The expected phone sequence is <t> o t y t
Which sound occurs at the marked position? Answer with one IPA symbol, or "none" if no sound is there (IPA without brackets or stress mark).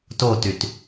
t